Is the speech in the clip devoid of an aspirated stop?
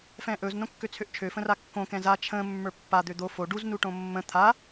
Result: no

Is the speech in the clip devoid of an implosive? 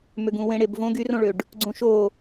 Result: yes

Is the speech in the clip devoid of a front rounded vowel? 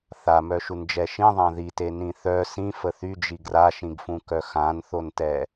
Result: no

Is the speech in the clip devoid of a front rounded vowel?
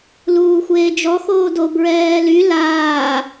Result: no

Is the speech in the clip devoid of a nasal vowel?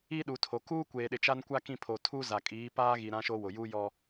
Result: no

